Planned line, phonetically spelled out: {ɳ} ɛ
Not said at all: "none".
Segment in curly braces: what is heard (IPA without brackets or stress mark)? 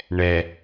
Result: ɳ